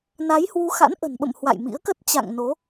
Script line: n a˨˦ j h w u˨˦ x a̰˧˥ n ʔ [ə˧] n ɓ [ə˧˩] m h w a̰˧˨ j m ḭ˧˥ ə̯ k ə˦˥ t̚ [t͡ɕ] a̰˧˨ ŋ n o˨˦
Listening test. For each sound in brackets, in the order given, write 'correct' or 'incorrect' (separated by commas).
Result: incorrect, incorrect, correct